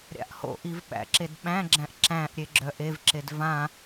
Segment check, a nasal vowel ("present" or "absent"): present